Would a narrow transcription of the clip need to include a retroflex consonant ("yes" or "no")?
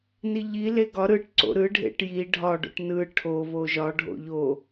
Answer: yes